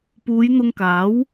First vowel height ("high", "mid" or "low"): high